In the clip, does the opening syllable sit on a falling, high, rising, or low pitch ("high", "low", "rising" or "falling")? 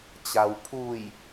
low